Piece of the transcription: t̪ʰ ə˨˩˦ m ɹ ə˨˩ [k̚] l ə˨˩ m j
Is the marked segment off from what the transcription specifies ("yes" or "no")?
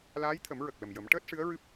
no